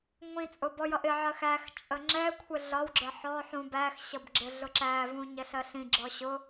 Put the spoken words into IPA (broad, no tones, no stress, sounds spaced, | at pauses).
ŋʷ ĩ t͡sʼ ʊ b ɔ j ʌ ʔ ɪ ʕ ɜ x æ x t͡ʃʼ ə ŋ͡ǁ ɛ kʷʰ ɪ ɮ ɒ w ɡ͡ǁ ə ħ ɔ ħ ũ b æ x ɕ ʌ b ɡ͡ǁ ɪ ɮ ʊ ǁ æ v ũ ɲ ɛ ɬ ɜ ɬ ĩ ɡ͡ǁ ɔ ɕ ʊ